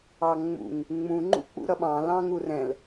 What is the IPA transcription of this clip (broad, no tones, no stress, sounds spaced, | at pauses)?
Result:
ɑ ŋ͡m ṵ ŋ | ŋ͡m ũ ŋ͡ǃ ṵ k͡p ṵ ɾ ʌ ɓ ɑ̃ l ɑ̃ ŋ u r ɛ̃ l